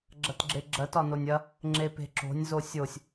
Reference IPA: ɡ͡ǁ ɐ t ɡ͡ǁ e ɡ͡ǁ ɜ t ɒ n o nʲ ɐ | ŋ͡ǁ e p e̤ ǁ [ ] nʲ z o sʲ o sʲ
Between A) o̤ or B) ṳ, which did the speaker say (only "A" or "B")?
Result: A